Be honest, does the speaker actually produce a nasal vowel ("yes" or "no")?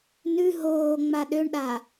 no